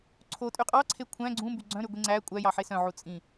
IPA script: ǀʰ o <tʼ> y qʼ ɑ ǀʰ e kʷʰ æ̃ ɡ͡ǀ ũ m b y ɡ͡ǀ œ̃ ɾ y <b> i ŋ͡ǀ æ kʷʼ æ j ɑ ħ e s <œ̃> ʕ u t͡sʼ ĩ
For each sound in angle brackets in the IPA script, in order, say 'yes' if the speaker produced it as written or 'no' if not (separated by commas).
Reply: yes, no, yes